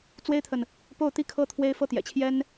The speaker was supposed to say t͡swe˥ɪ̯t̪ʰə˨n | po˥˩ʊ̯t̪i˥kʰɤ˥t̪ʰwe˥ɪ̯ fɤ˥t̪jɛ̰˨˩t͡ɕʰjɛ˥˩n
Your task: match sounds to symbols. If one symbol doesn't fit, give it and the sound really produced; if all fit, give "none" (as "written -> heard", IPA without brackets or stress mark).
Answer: ɛ˥˩ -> ɛ˥